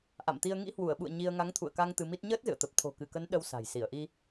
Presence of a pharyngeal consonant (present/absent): absent